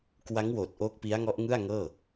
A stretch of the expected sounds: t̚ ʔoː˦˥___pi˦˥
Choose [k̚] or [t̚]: k̚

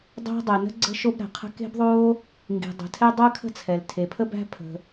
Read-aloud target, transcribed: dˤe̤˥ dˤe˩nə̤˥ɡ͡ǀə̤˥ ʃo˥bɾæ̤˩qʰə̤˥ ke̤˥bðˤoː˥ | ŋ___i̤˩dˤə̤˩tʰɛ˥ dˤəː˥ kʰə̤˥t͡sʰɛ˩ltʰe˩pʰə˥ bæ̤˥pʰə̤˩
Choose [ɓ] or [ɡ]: ɡ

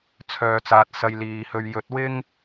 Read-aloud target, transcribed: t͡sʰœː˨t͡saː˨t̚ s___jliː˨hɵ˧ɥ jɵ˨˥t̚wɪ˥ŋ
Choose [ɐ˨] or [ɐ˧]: ɐ˧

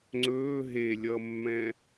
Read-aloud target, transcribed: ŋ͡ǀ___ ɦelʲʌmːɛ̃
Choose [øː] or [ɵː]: ɵː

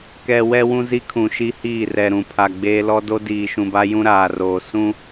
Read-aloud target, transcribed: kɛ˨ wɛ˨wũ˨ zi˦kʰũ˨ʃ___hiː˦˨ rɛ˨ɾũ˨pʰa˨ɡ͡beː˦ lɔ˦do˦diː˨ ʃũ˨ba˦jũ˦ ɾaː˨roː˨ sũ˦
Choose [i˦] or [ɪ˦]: i˦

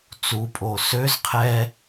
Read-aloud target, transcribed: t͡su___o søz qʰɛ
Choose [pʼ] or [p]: pʼ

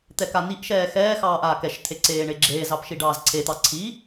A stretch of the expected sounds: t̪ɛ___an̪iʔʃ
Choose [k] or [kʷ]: k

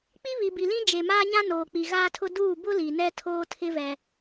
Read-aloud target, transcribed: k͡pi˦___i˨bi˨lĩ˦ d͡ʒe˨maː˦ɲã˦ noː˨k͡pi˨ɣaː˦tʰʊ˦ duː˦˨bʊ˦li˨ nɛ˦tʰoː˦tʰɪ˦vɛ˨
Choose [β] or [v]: β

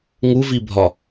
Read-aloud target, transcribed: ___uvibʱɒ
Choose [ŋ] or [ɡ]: ŋ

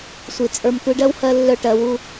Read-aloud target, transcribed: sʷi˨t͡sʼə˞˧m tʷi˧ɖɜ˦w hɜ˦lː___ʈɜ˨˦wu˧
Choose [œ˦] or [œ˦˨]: œ˦˨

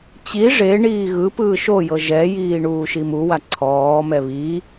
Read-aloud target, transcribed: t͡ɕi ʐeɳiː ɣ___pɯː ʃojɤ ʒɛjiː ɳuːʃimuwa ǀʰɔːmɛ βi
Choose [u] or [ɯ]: ɯ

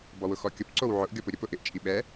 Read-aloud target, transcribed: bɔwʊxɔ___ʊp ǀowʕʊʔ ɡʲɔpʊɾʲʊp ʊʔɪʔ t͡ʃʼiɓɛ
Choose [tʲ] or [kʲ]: kʲ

